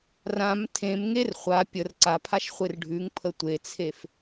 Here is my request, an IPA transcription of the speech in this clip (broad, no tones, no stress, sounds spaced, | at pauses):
r ã m tʰ ẽ m ŋ e r χʷ a pʲ ə r ǀ a pʰ a ʃ χʷ e r ɖʱ ʉ ŋ pʰ ə tʷ e t͡sʰ e f